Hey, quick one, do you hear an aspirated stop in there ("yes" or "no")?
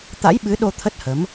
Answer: yes